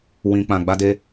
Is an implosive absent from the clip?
yes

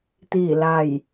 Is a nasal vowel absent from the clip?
yes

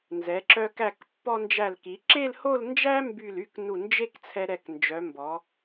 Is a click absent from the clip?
no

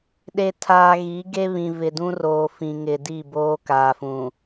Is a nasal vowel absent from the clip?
no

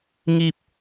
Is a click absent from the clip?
yes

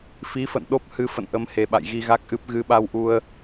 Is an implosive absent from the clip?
no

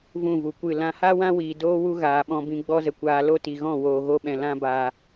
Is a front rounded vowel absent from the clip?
yes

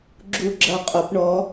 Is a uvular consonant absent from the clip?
no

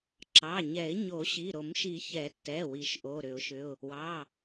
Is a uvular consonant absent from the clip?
yes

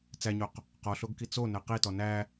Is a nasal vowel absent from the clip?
yes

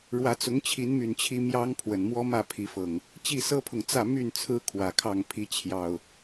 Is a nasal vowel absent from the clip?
yes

